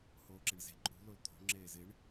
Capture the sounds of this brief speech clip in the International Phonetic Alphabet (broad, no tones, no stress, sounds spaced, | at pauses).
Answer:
h oː ǁ ɪ ɳ z e̤ ǃʼ ṳ l o l t̪ʰ o̤ ŋ͡ǁ eː z ɪ ɳ